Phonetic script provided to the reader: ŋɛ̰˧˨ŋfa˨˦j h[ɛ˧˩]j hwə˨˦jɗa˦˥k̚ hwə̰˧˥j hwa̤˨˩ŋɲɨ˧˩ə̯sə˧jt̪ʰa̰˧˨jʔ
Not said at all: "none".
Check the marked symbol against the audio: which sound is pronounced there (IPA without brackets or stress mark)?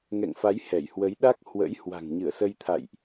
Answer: ɛ˧˩